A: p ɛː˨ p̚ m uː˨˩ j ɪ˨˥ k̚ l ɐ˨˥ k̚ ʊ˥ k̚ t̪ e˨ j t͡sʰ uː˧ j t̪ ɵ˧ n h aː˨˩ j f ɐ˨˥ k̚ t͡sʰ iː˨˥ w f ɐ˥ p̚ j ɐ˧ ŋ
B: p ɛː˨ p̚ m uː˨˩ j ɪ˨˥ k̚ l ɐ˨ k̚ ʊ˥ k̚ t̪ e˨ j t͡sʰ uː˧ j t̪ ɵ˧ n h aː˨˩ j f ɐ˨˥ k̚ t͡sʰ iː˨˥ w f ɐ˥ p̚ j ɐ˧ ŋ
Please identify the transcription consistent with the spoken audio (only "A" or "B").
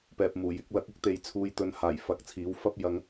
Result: A